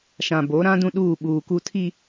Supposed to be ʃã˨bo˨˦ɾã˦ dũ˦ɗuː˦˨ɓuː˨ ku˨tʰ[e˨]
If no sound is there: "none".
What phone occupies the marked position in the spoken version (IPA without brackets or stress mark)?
i˨